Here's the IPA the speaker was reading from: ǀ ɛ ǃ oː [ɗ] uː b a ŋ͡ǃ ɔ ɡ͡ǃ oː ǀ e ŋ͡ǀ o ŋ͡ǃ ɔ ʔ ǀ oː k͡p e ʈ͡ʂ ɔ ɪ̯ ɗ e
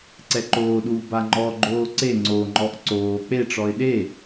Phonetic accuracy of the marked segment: correct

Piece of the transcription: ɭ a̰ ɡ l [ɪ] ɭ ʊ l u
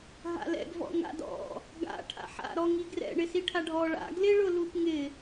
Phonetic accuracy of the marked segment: correct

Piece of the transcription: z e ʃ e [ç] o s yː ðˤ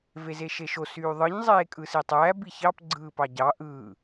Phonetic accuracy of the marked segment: incorrect: ʃ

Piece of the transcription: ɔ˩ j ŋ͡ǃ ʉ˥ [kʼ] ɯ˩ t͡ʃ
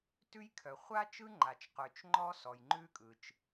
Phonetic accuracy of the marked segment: correct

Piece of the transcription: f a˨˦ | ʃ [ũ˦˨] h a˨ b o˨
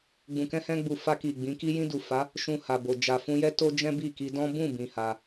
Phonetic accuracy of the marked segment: incorrect: ũ˧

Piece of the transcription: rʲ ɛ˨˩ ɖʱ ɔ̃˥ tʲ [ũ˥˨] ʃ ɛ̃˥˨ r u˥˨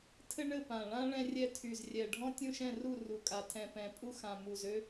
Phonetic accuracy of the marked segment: correct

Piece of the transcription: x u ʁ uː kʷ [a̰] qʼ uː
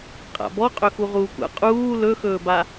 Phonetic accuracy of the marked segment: correct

